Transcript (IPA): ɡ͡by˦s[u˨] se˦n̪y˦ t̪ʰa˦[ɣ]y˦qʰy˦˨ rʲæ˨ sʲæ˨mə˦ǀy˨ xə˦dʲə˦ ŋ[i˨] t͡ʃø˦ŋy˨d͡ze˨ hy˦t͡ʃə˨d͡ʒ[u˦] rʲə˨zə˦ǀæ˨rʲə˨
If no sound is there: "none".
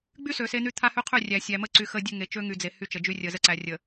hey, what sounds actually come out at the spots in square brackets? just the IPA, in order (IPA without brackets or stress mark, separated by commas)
ø˨, h, e˨, y˦